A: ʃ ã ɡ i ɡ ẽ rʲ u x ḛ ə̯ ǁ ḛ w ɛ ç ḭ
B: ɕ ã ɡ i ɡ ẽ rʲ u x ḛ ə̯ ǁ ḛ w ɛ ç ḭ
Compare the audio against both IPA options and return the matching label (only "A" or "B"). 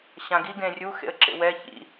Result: B